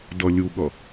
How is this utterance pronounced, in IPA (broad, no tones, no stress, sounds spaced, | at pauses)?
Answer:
d ʌ lʲ u ɠ ʌ